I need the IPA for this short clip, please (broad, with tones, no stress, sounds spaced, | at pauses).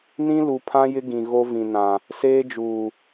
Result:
n ĩ˦ l u˨ pʰ ã˦ j ɪ˦ ɡ ĩ˨ ɣ o˦ v ĩ˨ n ã˨ | s eː˦ d͡ʒ uː˨